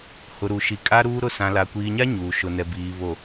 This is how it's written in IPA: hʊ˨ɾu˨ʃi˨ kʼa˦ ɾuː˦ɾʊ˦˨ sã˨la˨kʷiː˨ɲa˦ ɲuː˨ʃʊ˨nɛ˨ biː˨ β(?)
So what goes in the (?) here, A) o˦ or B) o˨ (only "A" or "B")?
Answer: B